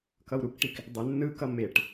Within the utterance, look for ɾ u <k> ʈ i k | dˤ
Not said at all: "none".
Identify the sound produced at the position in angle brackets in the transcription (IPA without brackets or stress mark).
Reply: k